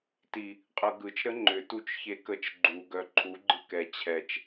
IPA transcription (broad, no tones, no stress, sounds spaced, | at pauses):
t i | qʼ ɤ ɡ ɯ t͡ʃ ɾ ə ŋ͡ǃ ʏ t u t͡ʃ ç e k ə t͡ʃ ɡ͡ǃ u ɡ œ ǃʰ u ɡ͡ǃ ɯ k ɛ t͡ɕʰ ɛ t͡ʃ